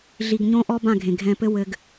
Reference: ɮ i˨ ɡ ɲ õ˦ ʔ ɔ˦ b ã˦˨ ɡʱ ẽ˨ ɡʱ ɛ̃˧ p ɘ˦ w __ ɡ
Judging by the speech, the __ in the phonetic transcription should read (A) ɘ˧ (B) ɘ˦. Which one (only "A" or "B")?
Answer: A